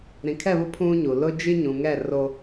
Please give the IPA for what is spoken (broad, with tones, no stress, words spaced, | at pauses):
ɾĩ˨kʰɛ˦˨βʊ˦ pʰũ˦ɲu˨ lʊ˦d͡ʒi˦ɲũ˨ ŋɛ˦˨ro˦